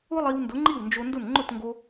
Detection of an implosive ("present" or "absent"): absent